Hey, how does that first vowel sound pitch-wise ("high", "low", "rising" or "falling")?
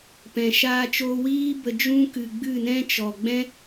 low